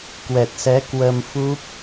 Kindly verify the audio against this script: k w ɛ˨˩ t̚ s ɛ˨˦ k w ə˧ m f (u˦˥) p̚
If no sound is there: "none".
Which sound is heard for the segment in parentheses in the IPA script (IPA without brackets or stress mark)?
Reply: u˦˥